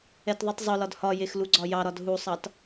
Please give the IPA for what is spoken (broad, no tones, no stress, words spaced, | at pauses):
ɛtðˤutˤzˤʊlɒd hɒjex luɡ͡ǀɒjɑɾɒd ɦusˤɑt